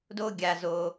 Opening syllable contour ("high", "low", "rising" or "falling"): high